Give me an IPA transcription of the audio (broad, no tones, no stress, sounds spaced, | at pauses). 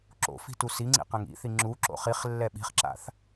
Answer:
ǁ o̰ f i̤ t u s i ŋ͡ǀ ḭ q ɛ̃ ŋ ḭ θ i ŋ͡ǁ u ǁ o̰ χ i χ lː ɛ ɓ i̤ χ ǁ a̰ θ